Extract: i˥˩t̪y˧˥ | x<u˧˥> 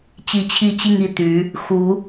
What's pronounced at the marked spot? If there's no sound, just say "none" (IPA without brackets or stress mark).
u˧˥